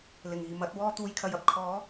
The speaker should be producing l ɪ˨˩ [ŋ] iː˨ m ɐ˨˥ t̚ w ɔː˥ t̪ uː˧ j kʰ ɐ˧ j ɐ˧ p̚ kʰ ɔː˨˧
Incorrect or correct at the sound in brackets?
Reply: correct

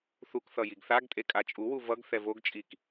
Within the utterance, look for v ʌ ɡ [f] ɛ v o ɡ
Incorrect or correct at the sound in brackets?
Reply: incorrect: θ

